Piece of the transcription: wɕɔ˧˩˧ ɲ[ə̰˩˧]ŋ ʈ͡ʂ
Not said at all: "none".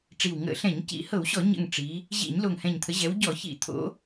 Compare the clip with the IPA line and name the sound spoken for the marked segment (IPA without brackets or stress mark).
ə̰˨˩